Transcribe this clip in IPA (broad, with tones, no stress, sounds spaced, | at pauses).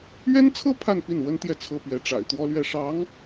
ɥ ɛ˥ n t͡sʰ ɤ˥ pʰ a˥˧ n p i˥˩ n w ə˥ n t̪ j ɛ˥˩ t͡sʰ ɤ˥ p ɥ ɛ˧˥ ʈ͡ʂ a̰˨˩ ɪ̯ t̪ w ɔ˥ l ɥ ɛ˥˩ ʂ ɑ˧˥ ŋ